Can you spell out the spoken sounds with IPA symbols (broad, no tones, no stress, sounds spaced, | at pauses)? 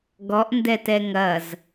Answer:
ɡ ɔ ʔ n d ɛ t ɛ ŋ ɐ z